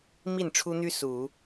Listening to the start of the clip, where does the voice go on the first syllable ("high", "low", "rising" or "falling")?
falling